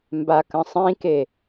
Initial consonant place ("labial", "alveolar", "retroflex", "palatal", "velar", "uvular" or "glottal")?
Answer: labial